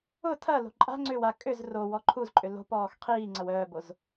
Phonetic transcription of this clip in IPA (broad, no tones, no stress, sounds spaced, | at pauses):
ʊ tʰ ɐ l o̤ ǃʼ a̤ ŋ͡ǀ ʏː w a kʼ ʏ z r o w ɔ ǃʰ u z ǃʼ ʏ l o̤ p ɔː x qʰ iː ŋ͡ǀ ɐ w œː b o z